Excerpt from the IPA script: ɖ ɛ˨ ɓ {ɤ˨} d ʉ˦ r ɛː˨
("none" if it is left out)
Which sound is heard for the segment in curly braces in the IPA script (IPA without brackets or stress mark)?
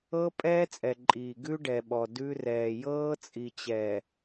ɔ˨